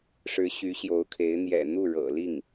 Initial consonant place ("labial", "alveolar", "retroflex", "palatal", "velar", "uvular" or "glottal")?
retroflex